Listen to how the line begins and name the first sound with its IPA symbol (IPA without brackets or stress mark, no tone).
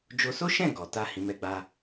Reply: d͡ʒ